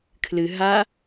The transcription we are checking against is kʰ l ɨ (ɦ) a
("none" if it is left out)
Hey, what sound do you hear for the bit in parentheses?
ɦ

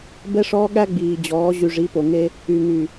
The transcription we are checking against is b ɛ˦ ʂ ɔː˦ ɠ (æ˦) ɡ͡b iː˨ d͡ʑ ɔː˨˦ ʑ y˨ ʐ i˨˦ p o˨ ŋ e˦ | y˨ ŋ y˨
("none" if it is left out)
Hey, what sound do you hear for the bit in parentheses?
æ˦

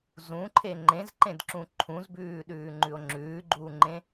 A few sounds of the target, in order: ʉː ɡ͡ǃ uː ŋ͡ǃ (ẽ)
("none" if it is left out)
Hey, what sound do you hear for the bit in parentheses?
ẽ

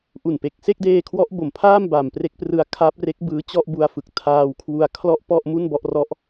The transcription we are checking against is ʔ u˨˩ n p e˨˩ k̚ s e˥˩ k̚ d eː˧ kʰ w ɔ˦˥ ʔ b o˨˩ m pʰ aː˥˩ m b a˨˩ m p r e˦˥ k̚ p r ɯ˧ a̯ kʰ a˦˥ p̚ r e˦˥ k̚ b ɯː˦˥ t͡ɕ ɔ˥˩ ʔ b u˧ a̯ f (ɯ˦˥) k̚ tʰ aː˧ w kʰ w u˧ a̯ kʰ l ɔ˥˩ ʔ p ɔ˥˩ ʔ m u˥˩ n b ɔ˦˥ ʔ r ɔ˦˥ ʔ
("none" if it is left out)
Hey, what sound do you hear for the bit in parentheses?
ɯ˨˩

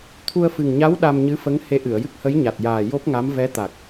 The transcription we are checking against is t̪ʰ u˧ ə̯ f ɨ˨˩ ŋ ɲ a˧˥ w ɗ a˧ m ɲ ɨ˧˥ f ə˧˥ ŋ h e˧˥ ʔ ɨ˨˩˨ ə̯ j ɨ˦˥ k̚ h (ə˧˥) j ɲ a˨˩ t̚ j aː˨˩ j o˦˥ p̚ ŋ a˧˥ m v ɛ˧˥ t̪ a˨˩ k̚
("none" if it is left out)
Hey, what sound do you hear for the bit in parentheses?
ə˧˥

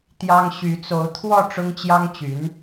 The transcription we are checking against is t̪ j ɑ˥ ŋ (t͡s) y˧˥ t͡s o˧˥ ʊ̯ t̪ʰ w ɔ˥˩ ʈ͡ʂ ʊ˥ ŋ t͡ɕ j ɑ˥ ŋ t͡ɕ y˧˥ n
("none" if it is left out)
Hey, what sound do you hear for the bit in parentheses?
ɕ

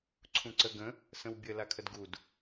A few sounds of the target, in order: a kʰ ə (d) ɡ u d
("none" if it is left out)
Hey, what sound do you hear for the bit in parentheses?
d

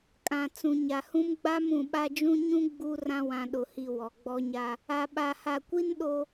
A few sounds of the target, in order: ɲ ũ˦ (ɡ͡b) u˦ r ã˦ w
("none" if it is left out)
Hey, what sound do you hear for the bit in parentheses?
ɡ͡b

